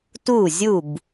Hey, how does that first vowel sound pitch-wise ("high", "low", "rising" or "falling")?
falling